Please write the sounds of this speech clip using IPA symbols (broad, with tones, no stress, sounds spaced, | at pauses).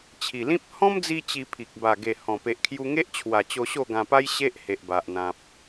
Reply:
t͡ɕʰ i˨˩ l ĩ˦ p̚ h ɔ̃˦ m d͡z i˧ t͡ɕ i˧ pʰ i˨ k̚ b a˨˩ ɡ e˨˩ h ɔ̃˨˩ p e˨ ʔ kʰ j u˧ ŋ e˦ ʔ t͡ɕʰ w a˨˩ t͡ɕ o˧ ɕ o˥˧ ɡ ã˧ p a˦ j ɕ e˦ ʔ h e˨ ʔ b a˨ ʔ n̪ ã˨ p̚